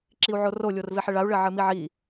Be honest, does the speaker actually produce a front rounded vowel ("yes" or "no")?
no